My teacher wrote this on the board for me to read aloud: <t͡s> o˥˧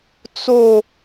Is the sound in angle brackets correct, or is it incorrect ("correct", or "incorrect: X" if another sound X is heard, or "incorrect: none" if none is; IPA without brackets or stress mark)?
correct